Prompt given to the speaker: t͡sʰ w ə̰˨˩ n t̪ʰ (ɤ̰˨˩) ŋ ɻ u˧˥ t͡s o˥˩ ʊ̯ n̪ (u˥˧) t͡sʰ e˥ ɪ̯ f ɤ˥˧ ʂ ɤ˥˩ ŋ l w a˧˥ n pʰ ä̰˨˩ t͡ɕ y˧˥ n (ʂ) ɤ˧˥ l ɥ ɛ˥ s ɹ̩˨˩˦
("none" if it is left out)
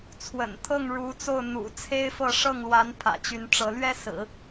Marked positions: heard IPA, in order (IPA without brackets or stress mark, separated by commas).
ɤ˥˩, ṵ˨˩, ʈ͡ʂ